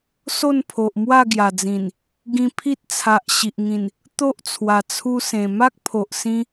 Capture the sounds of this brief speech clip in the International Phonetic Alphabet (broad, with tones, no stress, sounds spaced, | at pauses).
s o˥˧ n pʰ o˨ ʔ m w a˥˧ ɡ j a˨˩ d͡z ĩ˨˩ n | ɡ ĩ˧ pʰ i˦ t̚ t͡sʰ a˨ ʔ ɕ i˨ ʔ ŋ ĩ˨˩ n | t̪ o˦ ʔ t͡sʰ w a˨˩ t͡sʰ u˧ s ẽ˨˩ m a˦ k̚ pʰ o˨ ʔ s ĩ˧